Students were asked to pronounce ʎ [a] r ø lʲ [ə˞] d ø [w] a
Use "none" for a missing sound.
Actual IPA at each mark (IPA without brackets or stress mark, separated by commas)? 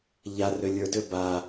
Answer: a, ə˞, b